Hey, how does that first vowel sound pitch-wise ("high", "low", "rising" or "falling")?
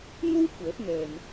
high